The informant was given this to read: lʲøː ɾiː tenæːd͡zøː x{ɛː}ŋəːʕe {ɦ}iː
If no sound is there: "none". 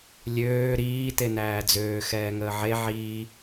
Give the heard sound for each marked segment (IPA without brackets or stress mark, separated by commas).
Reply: ɛː, ʕ